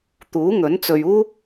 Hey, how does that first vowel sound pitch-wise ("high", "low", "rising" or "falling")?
rising